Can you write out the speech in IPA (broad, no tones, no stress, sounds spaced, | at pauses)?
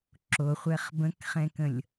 ǁ o χʷ ɛ χ b ə̃ k χ ɛ̃ k ə̃ lʲ